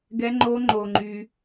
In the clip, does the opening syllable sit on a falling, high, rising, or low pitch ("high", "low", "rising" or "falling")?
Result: high